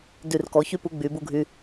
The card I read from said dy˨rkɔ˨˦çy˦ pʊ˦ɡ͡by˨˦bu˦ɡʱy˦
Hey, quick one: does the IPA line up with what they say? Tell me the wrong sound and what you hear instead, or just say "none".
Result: ʊ˦ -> u˦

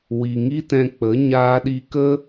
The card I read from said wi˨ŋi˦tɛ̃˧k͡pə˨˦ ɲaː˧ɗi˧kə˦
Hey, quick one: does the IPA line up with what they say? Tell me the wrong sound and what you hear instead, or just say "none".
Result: none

